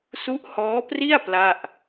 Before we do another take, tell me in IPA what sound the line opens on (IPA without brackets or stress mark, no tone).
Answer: s